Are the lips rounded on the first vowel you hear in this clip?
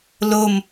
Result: yes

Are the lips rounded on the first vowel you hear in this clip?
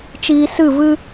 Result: no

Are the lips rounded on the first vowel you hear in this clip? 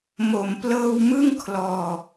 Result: yes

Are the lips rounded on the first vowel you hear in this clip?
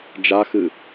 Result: no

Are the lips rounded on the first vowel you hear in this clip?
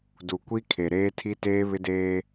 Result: yes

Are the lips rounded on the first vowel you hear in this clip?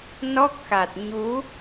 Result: yes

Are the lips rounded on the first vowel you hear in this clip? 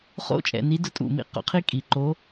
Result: yes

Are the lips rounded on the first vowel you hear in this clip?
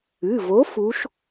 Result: no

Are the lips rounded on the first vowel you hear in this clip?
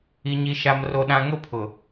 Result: no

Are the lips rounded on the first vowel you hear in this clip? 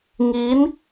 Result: no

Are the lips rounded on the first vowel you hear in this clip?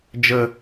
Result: no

